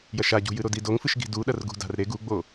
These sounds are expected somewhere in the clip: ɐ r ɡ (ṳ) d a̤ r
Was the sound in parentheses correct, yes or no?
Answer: yes